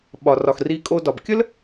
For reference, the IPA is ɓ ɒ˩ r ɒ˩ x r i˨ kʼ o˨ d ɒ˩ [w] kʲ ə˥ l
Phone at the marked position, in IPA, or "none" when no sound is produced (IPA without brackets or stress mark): b